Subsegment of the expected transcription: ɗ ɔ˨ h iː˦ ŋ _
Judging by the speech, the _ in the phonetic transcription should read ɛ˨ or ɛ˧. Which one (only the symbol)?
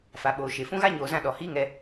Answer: ɛ˧